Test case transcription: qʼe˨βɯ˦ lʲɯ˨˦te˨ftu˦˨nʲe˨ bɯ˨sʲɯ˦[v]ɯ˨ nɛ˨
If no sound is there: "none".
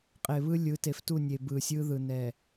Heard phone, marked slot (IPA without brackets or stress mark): ð